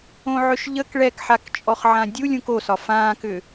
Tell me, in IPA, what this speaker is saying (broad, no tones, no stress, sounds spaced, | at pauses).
õ ʕ ʏ ʃ ʎ ə k ɭ ɛ k ħ a k t͡ʃʼ ɔ χ ʕ ã dʲ u lʲ ũ k o s ɒ f ãː k ʏː